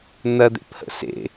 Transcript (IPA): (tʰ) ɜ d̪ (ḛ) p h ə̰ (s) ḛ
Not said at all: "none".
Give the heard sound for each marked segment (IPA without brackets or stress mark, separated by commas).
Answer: n̪, ḛ, s